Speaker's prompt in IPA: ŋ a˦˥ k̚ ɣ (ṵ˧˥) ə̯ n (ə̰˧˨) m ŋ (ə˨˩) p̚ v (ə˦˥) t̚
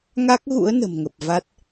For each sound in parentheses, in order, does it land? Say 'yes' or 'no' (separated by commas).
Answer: yes, no, yes, no